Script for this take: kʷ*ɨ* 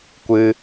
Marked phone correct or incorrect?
correct